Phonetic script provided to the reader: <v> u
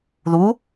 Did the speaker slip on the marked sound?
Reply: yes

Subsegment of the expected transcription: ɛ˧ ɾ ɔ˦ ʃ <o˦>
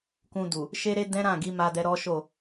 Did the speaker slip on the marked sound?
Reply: yes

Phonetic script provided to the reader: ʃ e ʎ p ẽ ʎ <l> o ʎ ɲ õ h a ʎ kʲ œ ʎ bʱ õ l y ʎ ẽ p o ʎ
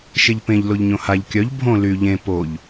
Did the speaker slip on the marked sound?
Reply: no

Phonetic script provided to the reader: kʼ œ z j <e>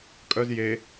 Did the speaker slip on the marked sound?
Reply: no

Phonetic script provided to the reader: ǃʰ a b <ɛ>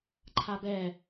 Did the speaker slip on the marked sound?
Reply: no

